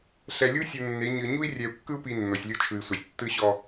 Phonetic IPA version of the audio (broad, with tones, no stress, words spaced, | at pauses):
ɬɛ˨lʲu˦ sʲu˨ nːe˨˦ ɲɯ˨ ɲu˦i̯ rʲɛ˨u̯kːɯ˦u̯pi˨ nːo˨sʲlʲo˦t͡ʃʰɯ˨i̯sʷɛ˨sʲ tːɯ˦ɕɔ˦